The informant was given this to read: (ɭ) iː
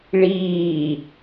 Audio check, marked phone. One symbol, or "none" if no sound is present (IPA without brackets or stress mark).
ɭ